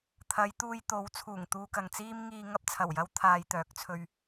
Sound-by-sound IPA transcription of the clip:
t̪ʰ ɐ˨˧ j t̪ uː˧ j t̪ o˨˥ w t͡sʰ uː˨˩ ŋ t̪ uː˧ k ɐ˨ ŋ t͡s iː˥ m ŋ iː˧ ŋ ɐ˥ p̚ t͡sʰ ɐ˨˩ w j ɐ˥ w t̪ʰ aː˧ j t̪ œː˨˥ k̚ t͡sʰ ɵ˧ ɥ

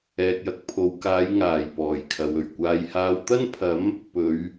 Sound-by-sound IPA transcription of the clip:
ɛː˨ k̚ j ɐ˨ k̚ pʰ o˨ w k aː˨˧ j ŋ aː˨˩ j p ɔː˨˩ j kʰ ɐ˨ w ɵ˨˩ ɥ kʷ aː˨ j h aː˨˧ w t̪ ɐ˥ n pʰ ɐ˨˥ m | p ɵ˨˧ ɥ

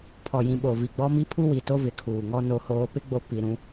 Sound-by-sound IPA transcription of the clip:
pʰ ɔ˨ j ĩ˨ ɓ o˨ v i˨ ɡ͡b ɔ˦ m i˦ pʰ u˦ w i˨ t o˦ v ɪ˨ kʰ uː˨ ŋ ɔ˦ n o˨ h oː˨ p ɪ˦ ɡ͡b o˨ p i˨ ɾ ũ˦

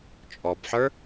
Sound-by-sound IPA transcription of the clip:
t͡ʃʼ ɔ b ħ ə˞

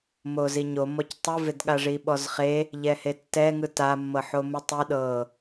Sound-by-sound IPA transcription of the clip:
m o z i ɲ o m ɔ c tˤ ɯ v e d ɠ a ʐ i ɓ ɔ z χ e | ʎ ɛ h e tː ɛ ŋ ɯ t a mː ɤ ħ o m u tˤ i ɗ ɤ

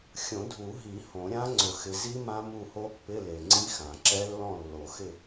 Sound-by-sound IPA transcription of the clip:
xʲ õ˨˩˦ dʱ u˨˩˦ ɦ i˨˩˦ h õ˨˩˦ ɾʲ ã˦˥ ŋ͡ǀ ʊ˨˩˦ x ɪ˨ z i˦˥ m ã˦˥ m u˦˨ h o˦˥ pː ɪ˧˥˧ l e˨ ŋ͡ǀ i˦˥ x ã˨˩˦ ǁ ɛ˦˥ lː ɔ̃˦˨ lː o˨˩˦ x ɪ˦˨

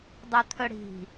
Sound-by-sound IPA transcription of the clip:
dˤ ɵ t̪ʰ ɵ ɽ i̤

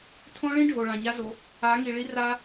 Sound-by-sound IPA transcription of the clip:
tʰ õ˦ ɭ ĩ˦ ɖʱ o˨ ɭ ã˨ ɲ a˦ z o˨˦ | a˨˦ ŋ i˨ ɭ i˦ r a˦

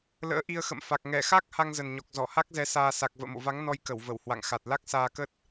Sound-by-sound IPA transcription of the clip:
l ə̰ː˧˥ ʔ i˧ ə̯ x ə̰˧˨ m f a˨˩ k̚ ŋ ɛ˧˩ x a˦˥ k̚ h a˧ ŋ z ə˨˩ n ɲ ɔ˨˩ k̚ z ɔ˧˩ h a˦˥ k̚ z ɛ˨˦ s aː˧ s a˨˩ k̚ v ə̰ː˧˨ m o̰˧˨ v a˨˦ ŋ n ɔ˧ j k ə˧˩ w v ə˧˩ w h w a̰˧˨ ŋ x a˨˩ t̚ l a˦˥ k̚ s aː˧ k ə˦˥ t̚

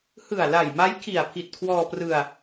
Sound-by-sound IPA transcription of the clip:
h ɯ˨˩ a̯ l a˨˩ j m a˦˥ j kʰ i˨˩ a̯ pʰ i˨˩ t̚ kʰ w ɔː˧ p r ɯ˧ a̯

